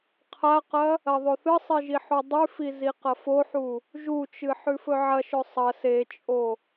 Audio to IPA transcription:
qʰ a q ɐ | ɐ ðˤ o θ ɨ sˤ i ʒ i ħ u dˤ ʉ f i z i q ɐ f o ħ u | ʒ u t͡ʃ ɨ ħ ʉ f ɵ ʕ ɐ ʃ ɵ sˤ ɐ s e t͡ʃʼ o

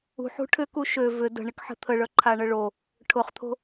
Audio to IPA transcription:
ṳ ħ ṳ ʈʰ ʏ k u ʃ ø v ʏ d ə̤ ɳ ɪ k ħ ə̤ t̪ʰ ə ɭ œ ǃʰ a ɳ ə ɭ o | ʈʰ ʊ χ t̪ʰ o̤

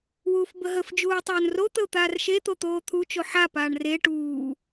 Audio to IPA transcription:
w uː f b ə ɦ ə f d͡ʒ uː ɪ̯ tˤ oː n r o t̪ ə ʊ̯ t̪ aː r ʃ e t̪ o t̪ oː t̪ʰ u t͡ʃ o ħ a p aː ɳ r e ʈ uː

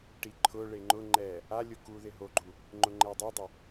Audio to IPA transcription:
ʈ i ǃʰ ʊ ɭ e ŋ͡ǃ ʊ ŋ͡ǃ ɛ | a lʲ ʊ k u ð ɪ ɦ o ɡ͡ǃ u | ŋ͡ǃ ʊ ŋ͡ǃ ɛ dˤ e dˤ ɪ

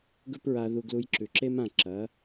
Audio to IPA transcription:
ɡ ɵ˥ p ɹ a˧ ð u˧ ɡ l u˧ j ǁ ʉ˩ ǁ e˥ m ã˥˩ ǁ ɐ˩˥

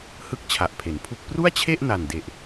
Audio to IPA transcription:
h ɯ˥˩ k̚ t͡ɕʰ a˨˩ ʔ pʰ e˩˦ n pʰ u˥˩ k̚ p r u˥˩ a̯ t͡ɕʰ e˥˩ ʔ n a˨˩ n d e˨˩ ʔ

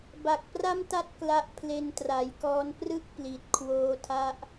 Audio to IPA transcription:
b a˨˩ k̚ p r a˥˩ m t a˥˩ t̚ k l a˦˥ ʔ pʰ l e˧ n t r a˩˦ j k ɔː˦˥ n p r ɯ˥˩ k̚ p l i˨˩ t̚ kʰ w oː˧ tʰ a˦˥ ʔ

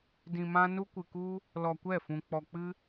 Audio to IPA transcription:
d ĩ˧ m ã˦ n u˦ kʷ ɨ˧ k u˦ | l ɔ˧ kʷ ɛ˦˨ f ũ˧ k͡p ɔ˧ k͡p ɨ˦

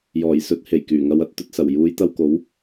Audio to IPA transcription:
j ɔː˨˩ j s ɵ˧ t̚ h e˨˩ j k yː˨˩ ŋ ɐ˨˧ w ɐ˨ t̚ t̪ ɵ˨ t̚ s ɐ˨˩ w j uː˨˧ j t̪ ɐ˧ w k o˨˥ w

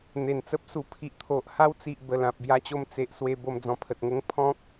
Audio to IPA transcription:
n̪ e˨˩ n t͡s ə˦ p̚ s u˨˩ pʰ i˨ ʔ t̪ʰ o˨ ʔ h a˦ w t͡s i˨ ʔ b ə˨˩ l ã˨ p̚ b j a˧ t͡ɕ o˧ m t͡s e˨ ʔ s w e˧ b o˧ m d͡z ɔ̃˧ pʰ ə˨ t̚ ŋ ə˦ ŋ pʰ ɔ̃˦ k̚

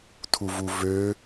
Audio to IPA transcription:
tʰ u v u v ø

